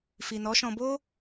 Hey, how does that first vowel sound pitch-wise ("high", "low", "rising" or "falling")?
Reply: low